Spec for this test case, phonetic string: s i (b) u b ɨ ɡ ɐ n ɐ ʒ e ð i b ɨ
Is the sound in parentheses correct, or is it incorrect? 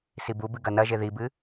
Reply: correct